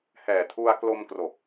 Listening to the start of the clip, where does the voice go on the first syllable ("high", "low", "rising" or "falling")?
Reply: low